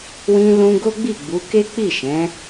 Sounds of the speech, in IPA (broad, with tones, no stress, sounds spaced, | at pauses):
w ĩ˧ l ũ˧ ɡ o˦ ɡ͡b i˦˨ ɡ͡b u˨˦ k e˦ k͡p i˦˨ ʃ ɛ̃˨˦